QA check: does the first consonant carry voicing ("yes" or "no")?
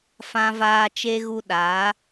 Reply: no